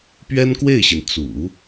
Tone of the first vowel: high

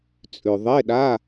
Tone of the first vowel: low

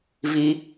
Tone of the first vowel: high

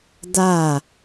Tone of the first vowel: falling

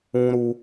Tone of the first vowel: high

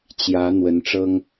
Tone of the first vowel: rising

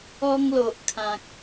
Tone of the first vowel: high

